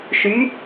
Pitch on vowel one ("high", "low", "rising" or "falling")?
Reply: rising